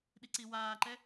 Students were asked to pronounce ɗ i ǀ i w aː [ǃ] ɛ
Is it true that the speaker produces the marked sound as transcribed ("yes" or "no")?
yes